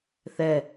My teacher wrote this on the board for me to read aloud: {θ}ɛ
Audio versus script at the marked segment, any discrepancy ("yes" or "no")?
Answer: no